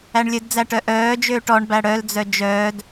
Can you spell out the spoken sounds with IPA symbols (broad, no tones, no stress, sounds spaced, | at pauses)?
æ ɳ lʲ ɵ d d͡z æ ʈ œ ʔ œː d͡ʒ øː ʈ ɔ ɳ b æ ɽ œ l d͡z œ d͡ʒ œː d